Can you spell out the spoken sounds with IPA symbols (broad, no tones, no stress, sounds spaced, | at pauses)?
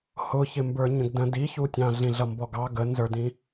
h ʊ ç ɪ m b ə˞ ɲ ə̃ ɡ d ə̃ d i ç u tʲ ɑ̃ ɮ ĩ ɮ ʌ m b ɔ ɡ ɑ ɡ ə n z ə˞ d ĩ